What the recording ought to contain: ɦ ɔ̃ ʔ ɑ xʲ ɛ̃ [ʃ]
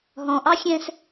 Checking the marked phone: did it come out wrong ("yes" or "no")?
yes